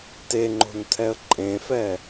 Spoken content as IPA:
teŋ͡ǃo̤ntʰɛə̯ ǃʼẽfɛ

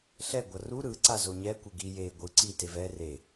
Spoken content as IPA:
ɬɛ ɡʷʌru ɾɯ ǀazoɲɛ kʷeɡi je ɡʷɯ ǀi tevɛ re

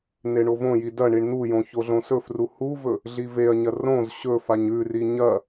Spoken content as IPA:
neɳovõji dɐ ɳiɳn̪ujõ çoɮõsɵfru huvɵ | ɮiveɐ̯ɲɐ rõz ɕɵ faɲʉri ɲɐ

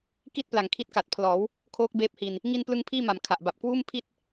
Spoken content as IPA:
ki˥˩t̚ pla˨˩ŋkʰi˦˥t̚ka˨˩t̚pʰlɔː˩˦w | kʰoː˦˥k̚beː˦˥p̚hi˧n | ŋi˧nplɯ˧ŋ pʰiː˥˩ma˩˦mkʰa˨˩ʔba˨˩p̚ kwuː˥˩m pʰi˥˩t̚

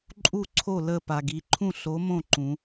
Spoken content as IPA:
ǃʼu˥˩ǀʰo˥˩ lə˥˩ pa˩ɡi˩˧ǃʰũ˥˩ ɬo˨˥mõ˥˩ ǃũ˩˧

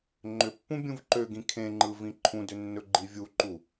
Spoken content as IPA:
ŋ͡ǃʏpːũ bʲũvǃøɡĩ kʰẽŋ͡ǃɯ vĩǃʰũdʏ nːɵɡ͡ǃivʲuǃu

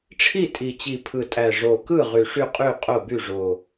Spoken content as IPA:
ʈ͡ʂʰi˥˨tʼi˨˩t͡ɕi˨˩ pʰɯ˨˩tʼæ˨˩ ʐo˨˩kɯ˥˨ ʁy˨˩ʂy˥˨qʼy˥˨ qʼo˥˨by˥˨ʐo˨˩

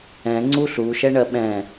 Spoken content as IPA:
ɛ̃ŋ͡ǀu ɬuʃɛɳɜ ɓɛ̃

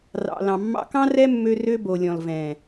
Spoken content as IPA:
rɑ̰˨lɑ̃˨ mːɑ̰˧kɑ̃˦rɛ˦mːø˧ rø˦ bo˨lʲɔ̃˨l vɛ̃˨

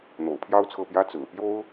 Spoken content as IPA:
n̪o̰˨˩ʊ̯pʰjɑ˥ʊ̯t͡sʰɤ˥˩pjä˥ t͡sɹ̩˨˩pjo˥ʊ̯

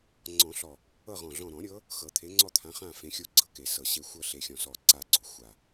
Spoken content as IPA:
ŋ͡ǀɔ̃˨˩˦ɬɔ˨˩ | ɤ˦˨ʁɔ̃˨˩ ɮɔ̃˨˩ɾɔ̃˨˩˦ɾʲɤ˨˦ | xɤ˨˩˦t̪ʰe˨˦ŋ͡ǀɔ˦˨t̪ʰã˨˦ χã˦˨ fẽ˨˦xʲo˦˨ɡ͡ǀɤ˦˨ke˨˩˦ sɤ˨˩ɕe˦˨ xʷɤ˦˨ɬe˨˩xʲɔ̃˨˩ sɔ˦˨ ǀa˦˨ɡ͡ǀo˨˩˦ xʷa˨˩

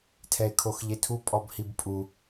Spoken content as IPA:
tʰɛe̯kʰoxʎetʰu pʼɔbhibpʼu

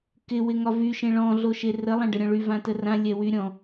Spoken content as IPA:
kɪ wɪŋɒvy ʃẽɭɔ̃ ɮoʃerə lˠãɖəɾʲɔ̃ɭy vãtərã lʲɛwyɾʲɔ̃

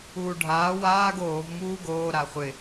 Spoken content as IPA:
uːɖʱaː waːɡ oːv muːɡoː ɾaχʷɪ

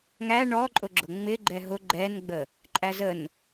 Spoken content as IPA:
ŋæ ɳɔǃʼʊ ɡ͡ǁʊŋ͡mɪɡ͡ǃɛ ɦʊ ɡ͡ǃɛnɡ͡bə | ǃʼæzən

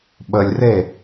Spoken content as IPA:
ɓəlʲre

